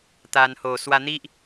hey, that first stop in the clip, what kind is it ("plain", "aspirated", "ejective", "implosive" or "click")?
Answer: plain